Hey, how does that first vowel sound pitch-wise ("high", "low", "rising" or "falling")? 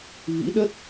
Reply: rising